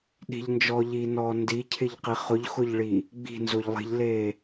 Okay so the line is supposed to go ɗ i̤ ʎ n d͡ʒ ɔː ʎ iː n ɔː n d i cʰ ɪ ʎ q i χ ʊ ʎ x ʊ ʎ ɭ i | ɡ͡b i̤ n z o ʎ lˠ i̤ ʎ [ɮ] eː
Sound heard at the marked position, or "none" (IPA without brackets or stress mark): l